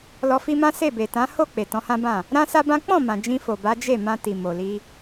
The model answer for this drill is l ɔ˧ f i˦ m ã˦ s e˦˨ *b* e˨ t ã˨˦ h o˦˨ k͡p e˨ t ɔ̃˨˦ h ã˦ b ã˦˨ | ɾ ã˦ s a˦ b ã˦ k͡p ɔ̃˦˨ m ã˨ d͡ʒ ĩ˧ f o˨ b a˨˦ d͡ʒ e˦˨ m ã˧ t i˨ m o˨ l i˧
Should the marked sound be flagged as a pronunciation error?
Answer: no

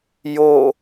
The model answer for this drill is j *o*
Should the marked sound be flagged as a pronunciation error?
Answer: no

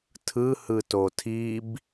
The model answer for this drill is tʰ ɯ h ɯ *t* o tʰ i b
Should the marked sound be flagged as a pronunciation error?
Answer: no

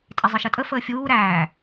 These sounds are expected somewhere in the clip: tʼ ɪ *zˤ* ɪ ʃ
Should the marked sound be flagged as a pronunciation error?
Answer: no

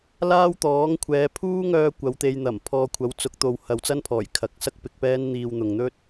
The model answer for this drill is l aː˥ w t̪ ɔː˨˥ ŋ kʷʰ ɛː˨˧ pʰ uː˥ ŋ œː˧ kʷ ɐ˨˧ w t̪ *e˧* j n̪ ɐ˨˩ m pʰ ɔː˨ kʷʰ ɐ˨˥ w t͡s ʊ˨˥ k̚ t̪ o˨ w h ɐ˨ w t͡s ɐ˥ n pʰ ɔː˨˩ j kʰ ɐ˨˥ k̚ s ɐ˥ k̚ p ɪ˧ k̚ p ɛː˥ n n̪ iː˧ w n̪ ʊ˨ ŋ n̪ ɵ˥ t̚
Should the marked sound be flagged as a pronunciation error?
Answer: no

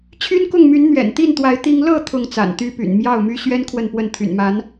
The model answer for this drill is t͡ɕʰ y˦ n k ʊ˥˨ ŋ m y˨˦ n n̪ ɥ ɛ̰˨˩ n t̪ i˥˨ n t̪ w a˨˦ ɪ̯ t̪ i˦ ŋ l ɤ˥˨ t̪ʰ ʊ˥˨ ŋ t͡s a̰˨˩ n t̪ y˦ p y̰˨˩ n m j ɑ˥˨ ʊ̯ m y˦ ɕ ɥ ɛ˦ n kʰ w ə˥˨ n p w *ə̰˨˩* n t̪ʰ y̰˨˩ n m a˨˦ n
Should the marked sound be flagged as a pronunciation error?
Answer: yes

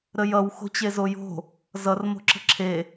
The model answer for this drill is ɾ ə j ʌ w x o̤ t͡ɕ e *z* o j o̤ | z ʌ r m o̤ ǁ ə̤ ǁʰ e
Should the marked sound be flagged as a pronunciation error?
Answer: no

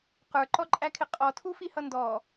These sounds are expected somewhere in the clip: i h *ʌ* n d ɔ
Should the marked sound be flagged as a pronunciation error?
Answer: no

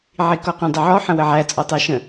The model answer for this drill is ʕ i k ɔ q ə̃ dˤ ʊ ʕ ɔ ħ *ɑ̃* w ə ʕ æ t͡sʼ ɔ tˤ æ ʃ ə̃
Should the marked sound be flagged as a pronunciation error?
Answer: yes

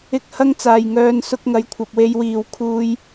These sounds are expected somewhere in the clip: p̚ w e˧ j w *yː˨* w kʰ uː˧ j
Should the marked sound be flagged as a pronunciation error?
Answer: yes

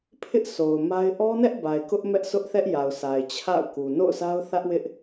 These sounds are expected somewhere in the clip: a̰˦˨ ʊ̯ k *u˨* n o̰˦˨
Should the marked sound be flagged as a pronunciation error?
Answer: no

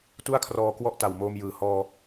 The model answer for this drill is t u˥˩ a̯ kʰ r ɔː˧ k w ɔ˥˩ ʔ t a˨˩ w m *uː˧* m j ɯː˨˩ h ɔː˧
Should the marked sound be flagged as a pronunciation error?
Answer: yes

